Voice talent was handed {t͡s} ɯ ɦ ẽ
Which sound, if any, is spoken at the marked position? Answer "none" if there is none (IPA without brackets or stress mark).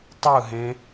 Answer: tˤ